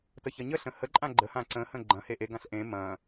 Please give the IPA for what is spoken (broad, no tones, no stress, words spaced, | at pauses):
təçɐɲəɬə̃ həǃʼã ɡ͡ǃə hãǀə̃hə̃ ɡ͡ǃɐ̃ heʔeɡãɬ ʔẽ mɐ̃